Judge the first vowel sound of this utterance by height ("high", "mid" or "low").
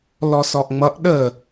mid